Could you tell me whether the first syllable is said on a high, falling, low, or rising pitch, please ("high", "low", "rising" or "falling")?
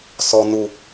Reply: low